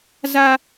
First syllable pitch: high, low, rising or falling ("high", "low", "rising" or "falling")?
high